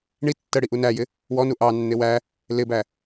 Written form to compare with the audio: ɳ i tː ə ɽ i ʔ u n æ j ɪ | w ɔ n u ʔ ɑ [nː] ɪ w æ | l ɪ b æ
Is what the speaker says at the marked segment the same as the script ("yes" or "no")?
yes